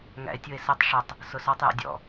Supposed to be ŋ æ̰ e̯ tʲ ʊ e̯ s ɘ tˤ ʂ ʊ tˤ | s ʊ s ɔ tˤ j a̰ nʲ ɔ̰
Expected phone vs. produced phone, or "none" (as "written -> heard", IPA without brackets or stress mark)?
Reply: nʲ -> dʲ